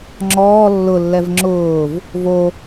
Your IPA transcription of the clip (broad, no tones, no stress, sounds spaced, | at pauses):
ŋ͡ǁ ɔː lː ʊ lː ɛ v ŋ͡ǁ ʊː v | v o